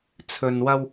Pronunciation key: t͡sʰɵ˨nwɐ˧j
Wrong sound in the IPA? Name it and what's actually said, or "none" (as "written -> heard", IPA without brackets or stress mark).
j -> w